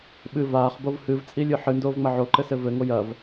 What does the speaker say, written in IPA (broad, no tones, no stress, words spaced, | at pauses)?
ɓɨ vaːχbov hɨvt͡sʼilʲɨ ħɨndoːvŋ͡mɐ ʕoǃɘsɘ vɘŋo jɐv